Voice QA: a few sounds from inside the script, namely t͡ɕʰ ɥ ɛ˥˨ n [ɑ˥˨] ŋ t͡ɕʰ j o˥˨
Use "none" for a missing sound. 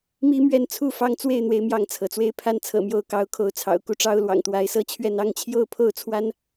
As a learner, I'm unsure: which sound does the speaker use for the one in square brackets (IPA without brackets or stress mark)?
ɑ˥˨